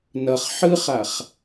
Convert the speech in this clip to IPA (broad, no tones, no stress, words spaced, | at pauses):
nʌχ ħɯχaχ